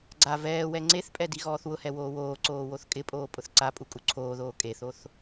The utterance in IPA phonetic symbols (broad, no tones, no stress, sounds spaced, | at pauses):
ɡ͡ǀ a v ɛː w ɛ ŋ͡ǀ e θ pʼ ɛ d i ɣ ɔː θ w ʊ h ɛ w oː w oː ǀ oː w o θ kʼ ɪ pʼ oː pʼ ʊ θ ǀ a pʼ u kʼ u ǀʰ oː ð oː kʼ e θ o θ